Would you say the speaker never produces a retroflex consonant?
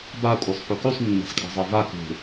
yes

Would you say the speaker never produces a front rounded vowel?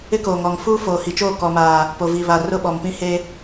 yes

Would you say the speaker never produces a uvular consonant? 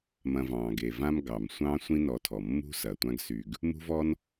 yes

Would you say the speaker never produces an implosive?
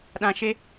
no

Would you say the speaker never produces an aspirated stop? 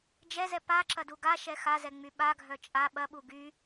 yes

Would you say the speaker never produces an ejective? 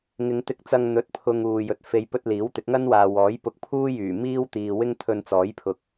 yes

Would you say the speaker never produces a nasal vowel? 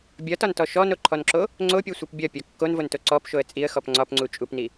yes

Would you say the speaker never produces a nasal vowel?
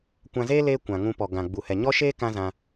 no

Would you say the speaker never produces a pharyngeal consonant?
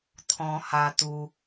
yes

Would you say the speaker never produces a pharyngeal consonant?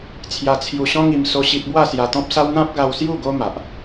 yes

